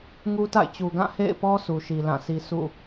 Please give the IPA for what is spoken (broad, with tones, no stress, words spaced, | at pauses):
ŋu˦ta̰˦˨ɪ̯t͡ɕu˨ ɡã˦˨hḛ˦˨ɪ̯pɔ˦ sʰu˨ʃi˨lã˦˨si˦ sṵ˦˨